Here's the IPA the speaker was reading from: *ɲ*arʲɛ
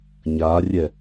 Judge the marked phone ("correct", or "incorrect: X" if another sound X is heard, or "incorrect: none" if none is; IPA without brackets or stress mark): correct